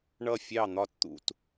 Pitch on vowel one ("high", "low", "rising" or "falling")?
falling